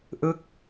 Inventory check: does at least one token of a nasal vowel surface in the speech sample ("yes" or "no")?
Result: no